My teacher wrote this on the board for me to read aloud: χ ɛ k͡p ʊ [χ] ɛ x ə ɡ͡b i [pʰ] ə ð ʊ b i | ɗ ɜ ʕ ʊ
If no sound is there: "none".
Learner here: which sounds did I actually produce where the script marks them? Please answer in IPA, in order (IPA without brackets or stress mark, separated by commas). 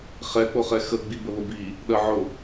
χ, b